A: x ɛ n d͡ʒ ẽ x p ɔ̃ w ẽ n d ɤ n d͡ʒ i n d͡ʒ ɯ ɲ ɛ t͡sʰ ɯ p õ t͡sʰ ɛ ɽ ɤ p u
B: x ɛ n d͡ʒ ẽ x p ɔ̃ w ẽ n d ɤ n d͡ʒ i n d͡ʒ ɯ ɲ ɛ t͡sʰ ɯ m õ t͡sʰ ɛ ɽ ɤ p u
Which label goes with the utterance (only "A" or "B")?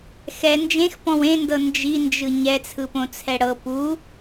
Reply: A